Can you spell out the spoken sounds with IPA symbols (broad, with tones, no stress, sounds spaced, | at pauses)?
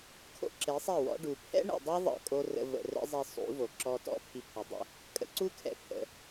kʰ o̰˦ ǁ e˨˦ sˤ ɛ˦˨ w ɔ̰˦ ɖ u˨ pʰ ɛ̰˦ ɳ ɛ̰˨ dˤ e˦ ðˤ ə̰˦˨ kʼ o˦ r ə̰˧ v ə̰˧ r ɛ̰˦ zˤ i˧ sˤ ṵ˨˦ v o˨ ǁ ɔ˧ t ɔ̰˦ pʰ i˧ pʰ ə˨˦ dˤ ə̰˦˨ | kʼ ə̰˧ ǀ u˦ kʰ ɛ̰˨ pʰ ə̰˨